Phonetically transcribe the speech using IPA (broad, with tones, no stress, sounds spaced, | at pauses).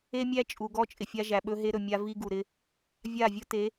e˦ mʲ æ˦ t͡ʃʼ u˨ ɡ ɔ˦ t͡ʃʼ ɪ˨ fʲ a˦ ʒ æ˨ ɓ ɵ˦ ɦ e˦ ɾ ɵ˨ mʲ a˦ v i˦ ɡ u˨ ɾ ɪ˦ | vʲ a˦˨ vʲ ɵ˦ t e˨˦